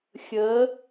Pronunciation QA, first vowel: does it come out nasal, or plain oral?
oral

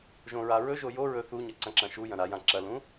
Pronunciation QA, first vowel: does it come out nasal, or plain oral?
nasal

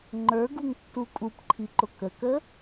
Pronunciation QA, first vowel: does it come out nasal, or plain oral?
oral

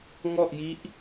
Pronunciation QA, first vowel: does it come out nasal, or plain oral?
oral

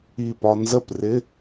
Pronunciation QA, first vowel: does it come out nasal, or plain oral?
oral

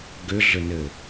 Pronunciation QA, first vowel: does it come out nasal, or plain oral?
oral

